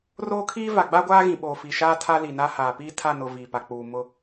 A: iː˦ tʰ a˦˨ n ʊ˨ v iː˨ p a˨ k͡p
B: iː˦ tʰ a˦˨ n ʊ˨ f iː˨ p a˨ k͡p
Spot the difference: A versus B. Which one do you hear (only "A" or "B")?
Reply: A